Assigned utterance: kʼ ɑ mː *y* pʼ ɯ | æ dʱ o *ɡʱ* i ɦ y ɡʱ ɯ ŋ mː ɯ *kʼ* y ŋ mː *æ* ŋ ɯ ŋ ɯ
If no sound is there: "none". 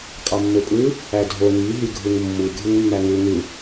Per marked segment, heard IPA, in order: ø, ŋ, ɡʱ, æ

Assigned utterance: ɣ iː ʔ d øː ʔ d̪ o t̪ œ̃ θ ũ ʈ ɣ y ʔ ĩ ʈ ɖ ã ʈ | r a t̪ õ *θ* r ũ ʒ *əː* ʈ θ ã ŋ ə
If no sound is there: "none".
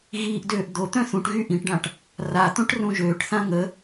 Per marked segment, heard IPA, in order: ʈ, øː

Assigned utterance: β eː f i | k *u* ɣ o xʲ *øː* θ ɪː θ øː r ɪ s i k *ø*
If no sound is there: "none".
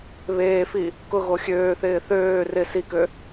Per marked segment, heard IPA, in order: ʊ, øː, ø

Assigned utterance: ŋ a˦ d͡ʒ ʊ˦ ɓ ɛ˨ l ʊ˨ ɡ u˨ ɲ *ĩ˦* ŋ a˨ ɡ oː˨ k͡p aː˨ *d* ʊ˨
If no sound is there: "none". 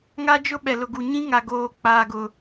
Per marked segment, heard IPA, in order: ĩ˦, ɡ

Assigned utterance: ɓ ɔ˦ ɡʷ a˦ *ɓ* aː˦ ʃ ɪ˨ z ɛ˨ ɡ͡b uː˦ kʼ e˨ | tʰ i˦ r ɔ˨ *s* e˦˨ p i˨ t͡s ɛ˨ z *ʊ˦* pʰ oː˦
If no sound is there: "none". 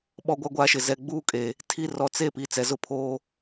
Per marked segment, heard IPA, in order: ɡʷ, t͡s, ʊ˦

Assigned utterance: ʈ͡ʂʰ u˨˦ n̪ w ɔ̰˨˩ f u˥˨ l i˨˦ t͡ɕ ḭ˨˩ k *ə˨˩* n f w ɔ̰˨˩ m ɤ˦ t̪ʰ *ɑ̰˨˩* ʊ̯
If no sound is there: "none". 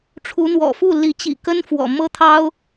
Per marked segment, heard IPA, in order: ə˦, ɑ˦

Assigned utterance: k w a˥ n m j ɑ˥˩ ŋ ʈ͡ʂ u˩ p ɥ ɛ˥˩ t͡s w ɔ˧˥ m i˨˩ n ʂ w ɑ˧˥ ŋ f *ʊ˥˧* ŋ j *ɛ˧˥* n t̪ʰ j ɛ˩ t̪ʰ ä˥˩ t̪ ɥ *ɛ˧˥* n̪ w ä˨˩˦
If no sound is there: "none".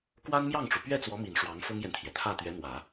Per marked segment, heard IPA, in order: ʊ˥, ɛ˨, ɛ˧˥

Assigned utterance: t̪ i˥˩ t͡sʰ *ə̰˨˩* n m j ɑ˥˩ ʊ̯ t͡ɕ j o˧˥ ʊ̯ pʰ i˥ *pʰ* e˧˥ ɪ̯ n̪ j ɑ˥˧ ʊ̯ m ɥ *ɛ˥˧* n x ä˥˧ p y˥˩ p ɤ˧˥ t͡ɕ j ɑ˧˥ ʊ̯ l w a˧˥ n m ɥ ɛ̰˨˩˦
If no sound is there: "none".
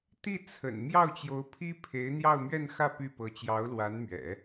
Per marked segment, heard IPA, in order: ə̰˨˩, pʰ, ɛ˥˧

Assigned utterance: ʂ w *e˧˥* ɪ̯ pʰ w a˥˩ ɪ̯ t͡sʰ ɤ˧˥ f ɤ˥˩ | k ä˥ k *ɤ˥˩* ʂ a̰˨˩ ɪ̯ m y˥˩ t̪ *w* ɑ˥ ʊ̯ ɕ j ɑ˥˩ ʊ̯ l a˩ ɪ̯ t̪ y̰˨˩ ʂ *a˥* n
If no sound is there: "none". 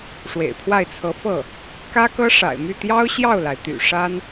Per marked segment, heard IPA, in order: ḛ˨˩, ɤ˥, j, a˥

